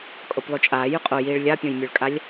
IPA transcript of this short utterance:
kʼ o p lˠ y t͡ʃʼ aː j y qʼ o j iː ɭ lʲ a pʲ õ j mʲ ø ɭ kʼ a lʲ

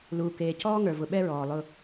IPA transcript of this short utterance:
l uː˨ k eː˨ c ɔː˦ ŋ ə˞˨ v ʊ˨ ɓ ɛ˦ ɹ ɔː˨ lˠ ʊ˦

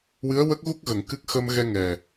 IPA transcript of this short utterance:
w ɨ˧˥ ə̯ w ə˦˥ k̚ ɣ u˦˥ k̚ ɣ ə˨˩˨ ŋ k ɨ˦˥ k̚ x ə˧ m ɣ ɛ˧ ŋ ɛ˨˩

